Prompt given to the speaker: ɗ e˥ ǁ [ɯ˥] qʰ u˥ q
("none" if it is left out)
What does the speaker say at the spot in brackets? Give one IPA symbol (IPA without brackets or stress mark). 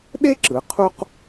ɯ˩˧